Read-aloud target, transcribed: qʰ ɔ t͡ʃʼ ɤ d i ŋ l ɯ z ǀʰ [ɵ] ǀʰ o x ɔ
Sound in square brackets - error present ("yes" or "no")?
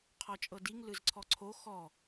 yes